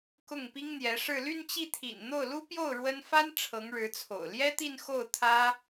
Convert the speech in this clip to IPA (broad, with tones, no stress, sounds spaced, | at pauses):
k ʊ˥˩ ŋ p i˥ ŋ n̪ j ɛ˧˥ ʂ ɻ̩˥˧ l y˥˧ n t͡ɕ i˥˩ t̪ʰ ḭ˨˩ n n̪ o˥˩ ʊ̯ l u˥ p j o˥˩ ʊ̯ ɻ w ə˥ n f a˥ n ʈ͡ʂʰ ɤ˧˥ ŋ ɻ ɻ̩˧˥ t͡sʰ o̰˨˩ ʊ̯ l j ɛ˥ t̪ i˥˧ n x o˥˩ ʊ̯ t̪ʰ ä˥